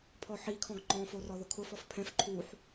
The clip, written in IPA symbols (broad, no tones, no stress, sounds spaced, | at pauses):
pʰ ɔ ħ i kʰ ɔ̃ ɡ ŋ͡ǃ ɔ̃ f o r ɔ ð ʊ kʰ ʊ f ɔ f pʰ ɛ̃ f ǃʰ u ħ